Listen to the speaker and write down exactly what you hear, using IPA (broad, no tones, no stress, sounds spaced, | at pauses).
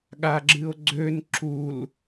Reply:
ɠ a ɡ͡ǁ ɨ o̯ ɡ͡ǀ ø n ǁ u l